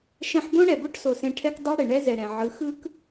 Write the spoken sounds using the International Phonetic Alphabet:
ʃ ɛ̃˧ ħ b õ˦ ɽ ɛ˨ b o˦ ʈ s o˨ s ẽ˧ ʈʰ ɛ˦ k dˤ o˦ ɽ e˨ ɳ ɛ˦ z ɛ˨ ɾ ɛ̃˨ ʕ ɯ˨˦ x ɯ˦ k

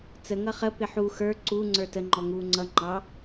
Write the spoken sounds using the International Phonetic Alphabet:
t͡s ə ŋ ʌ χ ə p ɪ ħ u x ə˞ ǀ u ŋ͡ǀ ə˞ t ə ŋ͡ǃ ɔ ŋ uː ŋ͡ǀ ʌ ŋ͡ǃ ɑ

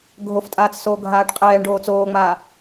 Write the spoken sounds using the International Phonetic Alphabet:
ɡʱ o f tʼ aː t͡s s oː ɡʱ aː ʈ qʼ ɛː ɳ ɖ oː t͡s oː ŋ͡m aː

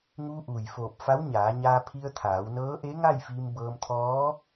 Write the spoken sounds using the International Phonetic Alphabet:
ŋ uː˧ ʔ uː˩ j f oː˧˩ p̚ f a˧˥ w ɲ aː˩˧ ɲ aː˧ pʰ i˧ ə̯ t̪ʰ aː˩˧ w n ɤː˧˥ ʔ e˧˥ ŋ a˥˨ j f iː˧ m b ɤː˧ m t̪ʰ ɔː˧˥

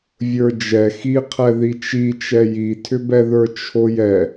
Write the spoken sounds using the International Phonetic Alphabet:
vʲ ə˞ d͡ʒ ɛ x i qʰ ɛ ð i t͡ʃ i t͡ʃ ɛ j i tʰ ʏ b ɛ ð ə˞ t͡ʃʰ o j ɛ

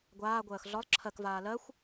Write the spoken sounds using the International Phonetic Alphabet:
ɡʷ aː ɡʷ ɜː x ɮ ɒ lˠ ǁʰ ɜ k v aː l ɜ xʷ

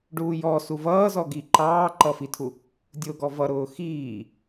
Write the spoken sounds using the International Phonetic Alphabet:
ɖ uː j ɔ s u v ʌː z ɔ ɡ i ǃ ɑː ǃ ʌ f i tʰ u | dʲ ʊː ɡ ɔ v ʌ ɾ ʊː x iː

